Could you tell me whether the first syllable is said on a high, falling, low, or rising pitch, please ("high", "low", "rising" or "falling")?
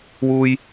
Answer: low